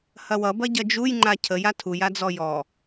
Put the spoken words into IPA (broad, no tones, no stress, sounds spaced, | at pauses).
h ɐ w ʌ b ɐ ɟ ɐ d͡ʒ u j ŋ͡ǃ a cʰ ə j a tʰ u j a d͡z ɔ j ɔ